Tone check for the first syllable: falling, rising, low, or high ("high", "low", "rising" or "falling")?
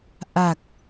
low